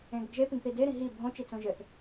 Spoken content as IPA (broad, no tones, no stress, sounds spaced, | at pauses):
ẽ ɡ ə ɡ ʒ e p ĩ ɡ θ i d e ɾ ĩ ɦ i bʱ õ t͡ʃ i t͡s õ ʒ ɘ θ